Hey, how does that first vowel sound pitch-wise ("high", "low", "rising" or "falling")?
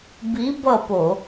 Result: rising